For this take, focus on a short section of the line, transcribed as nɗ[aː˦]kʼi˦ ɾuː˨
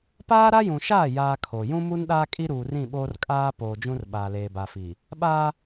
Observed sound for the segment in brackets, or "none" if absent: aː˦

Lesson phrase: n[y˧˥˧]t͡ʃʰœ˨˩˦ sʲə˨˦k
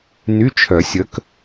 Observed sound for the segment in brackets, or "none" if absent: y˧˥˧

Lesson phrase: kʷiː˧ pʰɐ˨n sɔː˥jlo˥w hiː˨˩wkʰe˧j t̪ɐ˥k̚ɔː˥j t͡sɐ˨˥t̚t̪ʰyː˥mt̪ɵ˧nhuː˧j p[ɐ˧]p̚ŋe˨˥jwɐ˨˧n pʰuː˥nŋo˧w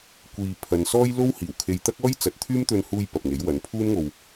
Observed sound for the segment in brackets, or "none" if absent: ɐ˨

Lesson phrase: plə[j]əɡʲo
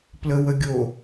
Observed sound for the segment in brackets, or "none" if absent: w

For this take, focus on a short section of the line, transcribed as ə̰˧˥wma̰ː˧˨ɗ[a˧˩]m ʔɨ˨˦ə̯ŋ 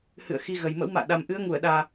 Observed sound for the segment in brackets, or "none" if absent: a˨˩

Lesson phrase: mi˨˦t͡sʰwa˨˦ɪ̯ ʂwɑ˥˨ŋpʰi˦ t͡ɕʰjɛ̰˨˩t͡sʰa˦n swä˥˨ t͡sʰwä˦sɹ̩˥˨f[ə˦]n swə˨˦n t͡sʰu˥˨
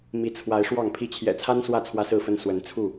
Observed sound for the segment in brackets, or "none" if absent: ə˦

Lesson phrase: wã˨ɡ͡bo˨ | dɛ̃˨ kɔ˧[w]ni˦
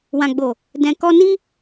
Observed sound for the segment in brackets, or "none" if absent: none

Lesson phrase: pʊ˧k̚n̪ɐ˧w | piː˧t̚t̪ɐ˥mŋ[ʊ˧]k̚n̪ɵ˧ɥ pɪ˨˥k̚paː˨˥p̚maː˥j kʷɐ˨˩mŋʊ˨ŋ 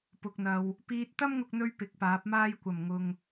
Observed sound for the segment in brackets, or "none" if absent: ʊ˧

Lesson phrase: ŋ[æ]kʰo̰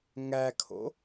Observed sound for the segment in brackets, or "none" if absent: æ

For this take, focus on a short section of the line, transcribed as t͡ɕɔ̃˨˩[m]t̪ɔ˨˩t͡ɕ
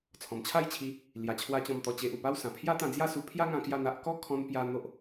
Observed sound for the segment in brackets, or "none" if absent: m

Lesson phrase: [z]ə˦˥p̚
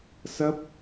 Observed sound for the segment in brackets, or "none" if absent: s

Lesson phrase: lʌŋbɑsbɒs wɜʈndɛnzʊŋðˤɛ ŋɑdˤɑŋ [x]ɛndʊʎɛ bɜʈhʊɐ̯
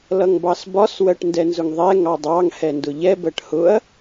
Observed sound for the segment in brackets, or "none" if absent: h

